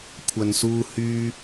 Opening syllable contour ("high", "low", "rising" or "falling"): low